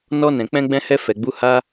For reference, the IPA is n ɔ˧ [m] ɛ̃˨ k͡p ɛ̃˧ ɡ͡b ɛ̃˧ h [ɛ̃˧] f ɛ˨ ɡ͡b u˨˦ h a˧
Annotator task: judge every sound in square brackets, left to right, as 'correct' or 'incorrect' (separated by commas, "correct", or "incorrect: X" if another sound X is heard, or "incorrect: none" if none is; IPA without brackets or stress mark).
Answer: incorrect: n, incorrect: ɛ˧